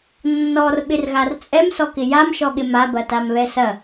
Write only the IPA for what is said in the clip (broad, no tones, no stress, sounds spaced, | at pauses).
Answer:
nː ɔ r ɓ ɪ r ɣ a r t͡sʼ ɛ m s ɔ k ɪ j a m ʃ ɔ ɠ ɪ m a b ɐ t a m β ɛ s ɐ